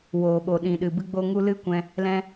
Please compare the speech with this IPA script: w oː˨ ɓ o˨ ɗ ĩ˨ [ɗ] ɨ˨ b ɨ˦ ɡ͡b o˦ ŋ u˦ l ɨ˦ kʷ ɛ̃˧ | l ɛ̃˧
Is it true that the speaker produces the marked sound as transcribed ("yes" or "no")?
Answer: yes